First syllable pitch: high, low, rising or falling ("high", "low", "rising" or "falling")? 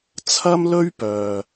high